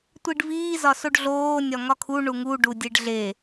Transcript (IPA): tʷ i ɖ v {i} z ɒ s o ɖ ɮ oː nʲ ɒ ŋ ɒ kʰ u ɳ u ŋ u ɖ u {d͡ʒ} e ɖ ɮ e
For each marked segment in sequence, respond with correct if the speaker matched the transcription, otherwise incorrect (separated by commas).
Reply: incorrect, incorrect